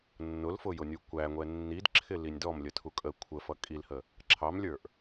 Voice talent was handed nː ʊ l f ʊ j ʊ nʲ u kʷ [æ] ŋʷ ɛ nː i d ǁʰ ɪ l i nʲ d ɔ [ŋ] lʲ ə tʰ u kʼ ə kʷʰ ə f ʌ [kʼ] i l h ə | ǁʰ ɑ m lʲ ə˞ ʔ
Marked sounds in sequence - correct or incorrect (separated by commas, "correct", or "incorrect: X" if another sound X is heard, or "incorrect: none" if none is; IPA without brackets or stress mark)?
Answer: correct, incorrect: m, correct